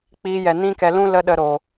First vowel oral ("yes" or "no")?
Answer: yes